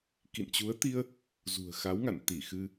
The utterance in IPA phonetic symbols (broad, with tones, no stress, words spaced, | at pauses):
kḭ˧˨nt͡ɕu˨˦ə̯t̪i˧ə̯ | zṳ˨˩ə̯xa˨˦wŋa̰˧˨n t̪i˧˩xɨ˧